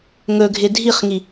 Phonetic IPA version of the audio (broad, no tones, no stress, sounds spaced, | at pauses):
ŋ ɵ ɡʱ ɪ dʱ i χ ŋ i